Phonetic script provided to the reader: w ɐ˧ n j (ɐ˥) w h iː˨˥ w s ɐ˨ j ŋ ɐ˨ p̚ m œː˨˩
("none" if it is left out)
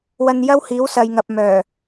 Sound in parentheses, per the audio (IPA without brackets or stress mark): ɐ˥